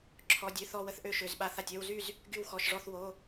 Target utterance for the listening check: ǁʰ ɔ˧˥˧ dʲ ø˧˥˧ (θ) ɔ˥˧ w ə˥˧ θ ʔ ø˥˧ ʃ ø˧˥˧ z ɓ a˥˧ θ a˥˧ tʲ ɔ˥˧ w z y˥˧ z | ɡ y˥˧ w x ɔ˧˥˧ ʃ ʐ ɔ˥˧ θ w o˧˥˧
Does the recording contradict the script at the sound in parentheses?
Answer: no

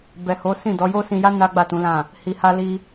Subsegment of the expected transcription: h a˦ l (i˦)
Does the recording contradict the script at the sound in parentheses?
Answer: no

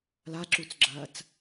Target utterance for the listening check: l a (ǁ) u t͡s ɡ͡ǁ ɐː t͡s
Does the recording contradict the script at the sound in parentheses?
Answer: no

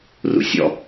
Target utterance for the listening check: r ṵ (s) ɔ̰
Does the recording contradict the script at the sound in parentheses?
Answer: yes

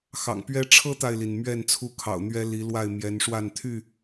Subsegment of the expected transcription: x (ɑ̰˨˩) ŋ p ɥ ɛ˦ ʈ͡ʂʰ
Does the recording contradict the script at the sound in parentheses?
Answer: no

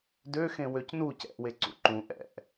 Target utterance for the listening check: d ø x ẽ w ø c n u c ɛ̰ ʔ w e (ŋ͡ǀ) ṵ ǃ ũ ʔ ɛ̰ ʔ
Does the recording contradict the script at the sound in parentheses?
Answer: yes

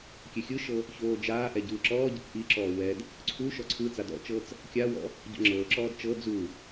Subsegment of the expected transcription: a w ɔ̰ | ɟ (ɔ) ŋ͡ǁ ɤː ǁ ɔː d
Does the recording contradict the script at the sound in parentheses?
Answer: yes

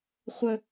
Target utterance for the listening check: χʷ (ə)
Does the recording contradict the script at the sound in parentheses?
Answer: no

